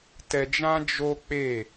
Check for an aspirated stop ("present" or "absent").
absent